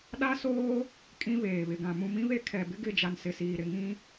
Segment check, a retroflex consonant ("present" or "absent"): absent